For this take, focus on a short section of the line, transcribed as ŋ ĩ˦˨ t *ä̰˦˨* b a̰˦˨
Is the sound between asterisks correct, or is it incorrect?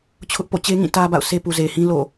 incorrect